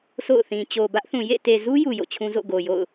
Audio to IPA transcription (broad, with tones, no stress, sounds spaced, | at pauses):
s o̰˦˨ ʊ̯ θ ĩ˨ t͡ɕ o˨ b ä˦ ʔ θ ũ˨ j ḛ˦˨ t e˨ z u˦ j u˨ j o̰˦˨ t͡ɕʰ ũ˦ z o̰˦˨ ɡ o˨ j o̰˦˨ ʊ̯